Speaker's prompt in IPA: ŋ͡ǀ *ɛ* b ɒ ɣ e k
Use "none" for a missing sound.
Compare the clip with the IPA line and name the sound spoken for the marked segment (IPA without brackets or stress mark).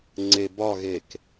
e